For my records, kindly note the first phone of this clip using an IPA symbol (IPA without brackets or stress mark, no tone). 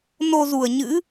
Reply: n